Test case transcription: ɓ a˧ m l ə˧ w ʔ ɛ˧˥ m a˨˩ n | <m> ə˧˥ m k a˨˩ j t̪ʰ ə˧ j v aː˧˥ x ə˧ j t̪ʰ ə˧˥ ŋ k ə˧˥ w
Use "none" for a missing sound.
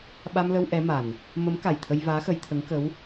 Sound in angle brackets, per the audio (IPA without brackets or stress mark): m